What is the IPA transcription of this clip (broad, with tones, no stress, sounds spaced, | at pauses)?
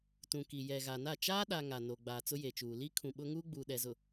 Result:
t ũ˨ k i˨ j ɛ˨ ɣ a˨ n a˦˨ t͡ʃ aː˦ ɗ a˨ ŋ a˨ n o˨ ɡ͡b aː˨ t͡s ʊ˦ j e˨ t͡ʃ uː˨ l i˦ kʰ ũ˨ ɓ ʊ˦ ŋ uː˦ ɡ͡b uː˨ ɗ ɛ˨ z ʊ˨